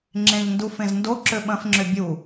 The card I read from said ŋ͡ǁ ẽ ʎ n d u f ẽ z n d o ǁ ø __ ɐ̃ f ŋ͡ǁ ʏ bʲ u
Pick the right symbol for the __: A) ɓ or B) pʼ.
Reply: A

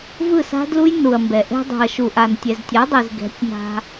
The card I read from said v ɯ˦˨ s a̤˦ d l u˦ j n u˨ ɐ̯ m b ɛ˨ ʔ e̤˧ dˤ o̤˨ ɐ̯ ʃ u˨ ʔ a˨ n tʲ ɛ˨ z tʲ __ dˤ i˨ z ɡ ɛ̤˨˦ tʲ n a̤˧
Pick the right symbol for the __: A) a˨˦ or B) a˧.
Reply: A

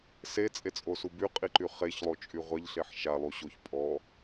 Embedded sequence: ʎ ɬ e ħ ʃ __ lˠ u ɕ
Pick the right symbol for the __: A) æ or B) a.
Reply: B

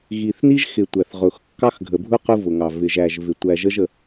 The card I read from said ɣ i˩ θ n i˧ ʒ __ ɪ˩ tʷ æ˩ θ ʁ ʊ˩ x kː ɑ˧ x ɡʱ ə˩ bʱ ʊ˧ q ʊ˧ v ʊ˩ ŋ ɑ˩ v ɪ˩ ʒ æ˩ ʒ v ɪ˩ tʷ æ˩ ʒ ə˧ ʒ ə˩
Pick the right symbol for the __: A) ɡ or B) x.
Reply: B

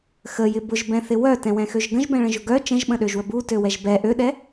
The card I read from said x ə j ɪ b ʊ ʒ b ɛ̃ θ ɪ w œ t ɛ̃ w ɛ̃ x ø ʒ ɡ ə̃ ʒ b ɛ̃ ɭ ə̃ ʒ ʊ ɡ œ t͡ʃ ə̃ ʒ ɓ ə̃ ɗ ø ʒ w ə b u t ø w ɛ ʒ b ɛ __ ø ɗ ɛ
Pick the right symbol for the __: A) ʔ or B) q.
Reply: A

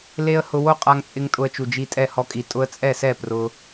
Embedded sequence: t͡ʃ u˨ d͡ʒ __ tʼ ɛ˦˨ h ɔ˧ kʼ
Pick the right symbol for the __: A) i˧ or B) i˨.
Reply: A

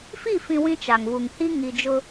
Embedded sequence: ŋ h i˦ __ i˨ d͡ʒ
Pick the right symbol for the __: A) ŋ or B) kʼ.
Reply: A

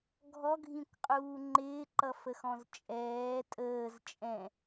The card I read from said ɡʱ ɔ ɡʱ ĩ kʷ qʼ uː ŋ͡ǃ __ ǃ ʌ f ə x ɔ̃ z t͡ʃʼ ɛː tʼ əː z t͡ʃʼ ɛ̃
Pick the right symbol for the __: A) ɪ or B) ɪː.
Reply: B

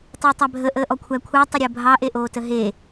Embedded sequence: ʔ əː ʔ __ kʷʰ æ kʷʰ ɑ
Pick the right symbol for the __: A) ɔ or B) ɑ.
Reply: A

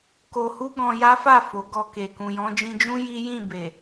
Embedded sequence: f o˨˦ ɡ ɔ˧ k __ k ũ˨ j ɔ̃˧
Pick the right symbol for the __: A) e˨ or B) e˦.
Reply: A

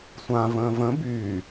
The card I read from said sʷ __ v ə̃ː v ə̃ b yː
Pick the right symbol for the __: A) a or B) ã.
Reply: B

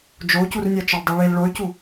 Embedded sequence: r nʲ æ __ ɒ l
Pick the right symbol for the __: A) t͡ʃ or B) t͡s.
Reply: A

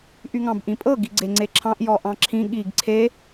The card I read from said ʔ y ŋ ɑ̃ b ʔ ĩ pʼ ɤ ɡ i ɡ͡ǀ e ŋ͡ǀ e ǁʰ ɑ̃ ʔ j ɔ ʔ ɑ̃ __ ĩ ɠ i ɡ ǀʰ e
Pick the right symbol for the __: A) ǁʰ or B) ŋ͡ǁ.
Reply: A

